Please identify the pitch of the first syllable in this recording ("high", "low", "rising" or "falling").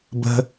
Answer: high